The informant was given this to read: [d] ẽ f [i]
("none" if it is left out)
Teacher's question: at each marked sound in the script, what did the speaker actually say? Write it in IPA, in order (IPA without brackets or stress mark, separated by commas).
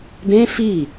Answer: d, i